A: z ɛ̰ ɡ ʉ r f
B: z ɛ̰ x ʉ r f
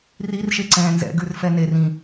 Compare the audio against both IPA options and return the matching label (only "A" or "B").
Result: A